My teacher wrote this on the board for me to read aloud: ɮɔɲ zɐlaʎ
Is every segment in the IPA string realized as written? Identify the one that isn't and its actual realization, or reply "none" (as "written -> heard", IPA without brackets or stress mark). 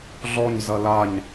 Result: ʎ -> ɲ